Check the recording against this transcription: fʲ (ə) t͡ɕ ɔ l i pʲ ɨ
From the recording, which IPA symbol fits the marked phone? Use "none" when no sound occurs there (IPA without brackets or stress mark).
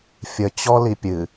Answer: ə